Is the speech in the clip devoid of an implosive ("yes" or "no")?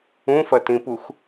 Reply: yes